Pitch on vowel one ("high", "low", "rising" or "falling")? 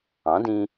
rising